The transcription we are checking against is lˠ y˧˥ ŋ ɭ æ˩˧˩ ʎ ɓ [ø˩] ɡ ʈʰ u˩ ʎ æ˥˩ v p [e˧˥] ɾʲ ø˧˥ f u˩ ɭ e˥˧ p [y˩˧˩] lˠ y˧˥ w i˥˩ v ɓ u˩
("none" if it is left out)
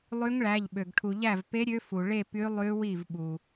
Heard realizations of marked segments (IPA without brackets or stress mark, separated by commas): ø˩, e˧˥, y˧˥